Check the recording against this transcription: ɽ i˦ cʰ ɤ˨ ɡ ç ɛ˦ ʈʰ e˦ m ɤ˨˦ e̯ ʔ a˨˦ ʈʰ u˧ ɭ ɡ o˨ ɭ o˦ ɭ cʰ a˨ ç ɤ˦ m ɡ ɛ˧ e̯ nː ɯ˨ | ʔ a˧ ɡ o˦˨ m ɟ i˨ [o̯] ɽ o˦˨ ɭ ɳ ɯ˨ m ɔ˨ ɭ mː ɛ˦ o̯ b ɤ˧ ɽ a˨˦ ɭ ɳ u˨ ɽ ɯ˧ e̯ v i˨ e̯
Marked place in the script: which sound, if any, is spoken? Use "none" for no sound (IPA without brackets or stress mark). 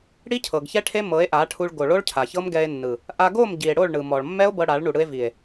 e̯